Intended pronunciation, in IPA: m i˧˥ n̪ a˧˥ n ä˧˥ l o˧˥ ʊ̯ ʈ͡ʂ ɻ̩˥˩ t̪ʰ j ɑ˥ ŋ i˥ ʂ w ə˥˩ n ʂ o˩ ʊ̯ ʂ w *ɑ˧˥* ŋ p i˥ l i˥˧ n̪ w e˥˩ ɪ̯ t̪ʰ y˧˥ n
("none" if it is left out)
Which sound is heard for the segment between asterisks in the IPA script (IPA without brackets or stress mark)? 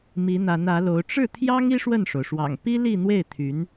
ɑ̰˨˩